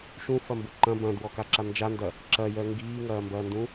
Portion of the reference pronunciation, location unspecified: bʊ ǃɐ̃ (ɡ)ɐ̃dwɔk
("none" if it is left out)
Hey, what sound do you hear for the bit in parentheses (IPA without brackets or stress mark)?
b